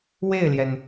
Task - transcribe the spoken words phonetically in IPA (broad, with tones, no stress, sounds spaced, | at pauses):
w e˥˩ ɪ̯ l j ɛ˩ n